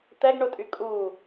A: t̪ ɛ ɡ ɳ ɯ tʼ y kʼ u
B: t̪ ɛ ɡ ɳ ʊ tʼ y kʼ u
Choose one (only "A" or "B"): B